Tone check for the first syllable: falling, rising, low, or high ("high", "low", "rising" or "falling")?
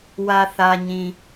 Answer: low